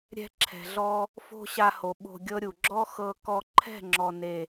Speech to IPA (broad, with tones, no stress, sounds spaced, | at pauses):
ɾʲ ɛ̤˦ ǁʰ ɛ̤˨ ɮ ɔ˦ | f o̤˦ ɕ a˧ h o˨ ɓ o̤˧ ɡʲ ɤ˦ ɾʲ u˨ ɡ͡ǁ ɔ˦ x ɤ˧ k ɔ˧ ǃʰ ɛ̤˦˨ ŋ͡ǁ ɔ˨ n e˨